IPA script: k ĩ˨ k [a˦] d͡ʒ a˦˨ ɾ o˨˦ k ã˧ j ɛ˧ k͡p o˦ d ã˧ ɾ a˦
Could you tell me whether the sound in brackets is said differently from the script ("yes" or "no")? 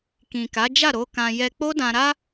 yes